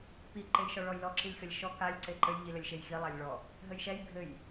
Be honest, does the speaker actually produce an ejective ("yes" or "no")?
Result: no